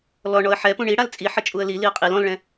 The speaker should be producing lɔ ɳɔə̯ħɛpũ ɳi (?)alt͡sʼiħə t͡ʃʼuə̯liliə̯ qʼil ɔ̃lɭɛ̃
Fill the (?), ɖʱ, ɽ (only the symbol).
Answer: ɽ